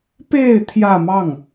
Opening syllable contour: falling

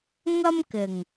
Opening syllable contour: high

